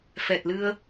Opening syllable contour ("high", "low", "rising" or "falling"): low